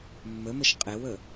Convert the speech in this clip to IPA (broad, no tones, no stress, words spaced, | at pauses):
mːəməʃ qʼewə